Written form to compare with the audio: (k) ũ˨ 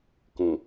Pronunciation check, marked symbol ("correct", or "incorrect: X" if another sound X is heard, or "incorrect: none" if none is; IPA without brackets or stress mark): correct